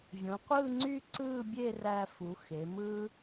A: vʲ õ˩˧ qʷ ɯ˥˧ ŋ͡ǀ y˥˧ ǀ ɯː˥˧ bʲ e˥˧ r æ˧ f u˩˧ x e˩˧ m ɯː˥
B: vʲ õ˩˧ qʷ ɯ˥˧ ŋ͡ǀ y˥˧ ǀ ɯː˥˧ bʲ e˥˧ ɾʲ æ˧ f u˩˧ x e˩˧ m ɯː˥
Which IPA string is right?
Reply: A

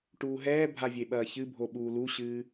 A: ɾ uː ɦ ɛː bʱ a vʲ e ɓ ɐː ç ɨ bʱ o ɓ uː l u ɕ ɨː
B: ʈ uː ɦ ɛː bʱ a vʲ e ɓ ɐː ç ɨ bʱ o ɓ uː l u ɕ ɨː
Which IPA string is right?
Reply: B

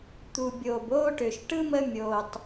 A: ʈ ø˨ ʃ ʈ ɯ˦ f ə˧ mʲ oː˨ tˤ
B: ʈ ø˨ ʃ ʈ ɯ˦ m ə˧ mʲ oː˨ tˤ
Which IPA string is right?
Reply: B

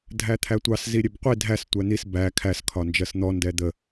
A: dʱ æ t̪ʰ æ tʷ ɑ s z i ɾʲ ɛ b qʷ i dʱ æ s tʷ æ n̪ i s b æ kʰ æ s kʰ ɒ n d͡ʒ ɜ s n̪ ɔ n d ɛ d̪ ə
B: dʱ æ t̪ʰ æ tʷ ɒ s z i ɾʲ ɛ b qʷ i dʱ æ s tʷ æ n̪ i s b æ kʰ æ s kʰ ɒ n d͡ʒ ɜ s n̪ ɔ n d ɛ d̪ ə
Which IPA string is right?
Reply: A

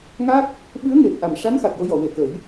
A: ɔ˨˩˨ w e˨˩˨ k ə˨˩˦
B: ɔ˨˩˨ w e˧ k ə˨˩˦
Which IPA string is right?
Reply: A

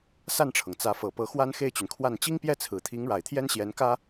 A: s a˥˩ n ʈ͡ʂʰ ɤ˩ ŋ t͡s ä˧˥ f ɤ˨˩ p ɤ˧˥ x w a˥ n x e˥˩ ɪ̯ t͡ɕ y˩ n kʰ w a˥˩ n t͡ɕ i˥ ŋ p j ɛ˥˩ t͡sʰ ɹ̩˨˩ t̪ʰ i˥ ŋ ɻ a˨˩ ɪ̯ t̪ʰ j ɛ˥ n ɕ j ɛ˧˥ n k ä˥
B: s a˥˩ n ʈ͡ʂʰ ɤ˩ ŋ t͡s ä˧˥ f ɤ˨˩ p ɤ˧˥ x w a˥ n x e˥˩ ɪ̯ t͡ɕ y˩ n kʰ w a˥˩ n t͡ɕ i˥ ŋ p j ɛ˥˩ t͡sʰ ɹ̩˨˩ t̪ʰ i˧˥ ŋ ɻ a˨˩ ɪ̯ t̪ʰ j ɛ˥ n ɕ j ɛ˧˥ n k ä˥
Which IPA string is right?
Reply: B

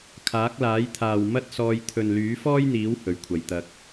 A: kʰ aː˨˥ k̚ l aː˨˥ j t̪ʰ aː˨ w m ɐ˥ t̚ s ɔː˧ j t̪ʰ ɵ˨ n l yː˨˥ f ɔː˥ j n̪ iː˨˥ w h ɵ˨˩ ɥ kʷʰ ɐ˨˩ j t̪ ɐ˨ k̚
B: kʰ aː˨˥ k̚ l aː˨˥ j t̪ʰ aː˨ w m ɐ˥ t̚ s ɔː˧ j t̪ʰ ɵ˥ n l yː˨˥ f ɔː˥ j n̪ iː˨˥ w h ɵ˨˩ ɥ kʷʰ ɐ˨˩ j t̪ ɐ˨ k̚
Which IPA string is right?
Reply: A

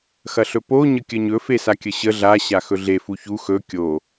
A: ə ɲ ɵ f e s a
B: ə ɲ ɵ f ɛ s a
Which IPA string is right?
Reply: A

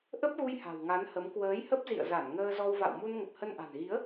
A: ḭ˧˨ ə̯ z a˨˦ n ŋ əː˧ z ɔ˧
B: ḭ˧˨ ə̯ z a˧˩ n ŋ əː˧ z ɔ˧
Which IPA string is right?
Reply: B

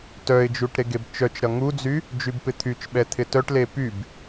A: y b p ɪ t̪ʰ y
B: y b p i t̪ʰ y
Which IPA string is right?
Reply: A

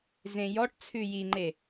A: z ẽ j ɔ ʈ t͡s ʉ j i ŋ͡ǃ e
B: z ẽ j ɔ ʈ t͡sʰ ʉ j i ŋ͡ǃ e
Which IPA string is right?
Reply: B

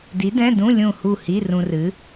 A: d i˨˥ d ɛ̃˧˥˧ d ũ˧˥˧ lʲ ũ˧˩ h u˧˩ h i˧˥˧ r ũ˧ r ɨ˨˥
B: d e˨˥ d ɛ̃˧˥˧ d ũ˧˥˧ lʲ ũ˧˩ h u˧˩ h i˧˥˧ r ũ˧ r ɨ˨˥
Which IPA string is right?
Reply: A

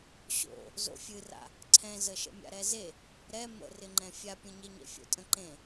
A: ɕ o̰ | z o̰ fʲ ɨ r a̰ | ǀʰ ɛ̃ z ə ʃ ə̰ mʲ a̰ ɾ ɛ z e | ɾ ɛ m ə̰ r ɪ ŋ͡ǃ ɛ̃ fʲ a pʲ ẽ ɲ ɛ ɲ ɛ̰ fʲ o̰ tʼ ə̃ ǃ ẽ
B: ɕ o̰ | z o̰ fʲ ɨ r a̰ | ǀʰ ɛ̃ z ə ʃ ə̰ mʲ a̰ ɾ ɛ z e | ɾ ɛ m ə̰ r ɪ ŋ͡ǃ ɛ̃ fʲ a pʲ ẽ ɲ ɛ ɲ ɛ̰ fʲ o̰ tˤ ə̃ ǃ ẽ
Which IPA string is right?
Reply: A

